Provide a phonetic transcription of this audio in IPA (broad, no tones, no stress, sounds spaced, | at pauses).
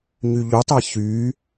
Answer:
ɲ y ʎ u tˤ æ ç y